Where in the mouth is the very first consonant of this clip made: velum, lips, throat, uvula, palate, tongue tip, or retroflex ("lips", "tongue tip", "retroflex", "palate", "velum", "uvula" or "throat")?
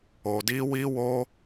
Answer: tongue tip